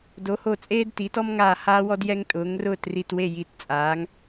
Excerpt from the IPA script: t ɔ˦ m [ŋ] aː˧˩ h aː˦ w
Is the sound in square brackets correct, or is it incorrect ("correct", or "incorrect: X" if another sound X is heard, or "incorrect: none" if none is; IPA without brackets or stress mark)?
correct